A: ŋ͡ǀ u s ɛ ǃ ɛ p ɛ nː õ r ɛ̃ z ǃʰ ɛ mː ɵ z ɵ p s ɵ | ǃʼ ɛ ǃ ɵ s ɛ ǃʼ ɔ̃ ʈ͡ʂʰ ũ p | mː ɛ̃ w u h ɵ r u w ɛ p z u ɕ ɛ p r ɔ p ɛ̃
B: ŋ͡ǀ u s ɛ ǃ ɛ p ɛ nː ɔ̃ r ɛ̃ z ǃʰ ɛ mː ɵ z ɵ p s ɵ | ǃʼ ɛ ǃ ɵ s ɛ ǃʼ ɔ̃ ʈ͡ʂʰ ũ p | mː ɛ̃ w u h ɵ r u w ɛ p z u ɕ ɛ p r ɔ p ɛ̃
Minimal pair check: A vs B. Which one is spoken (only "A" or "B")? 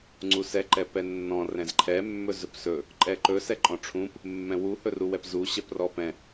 B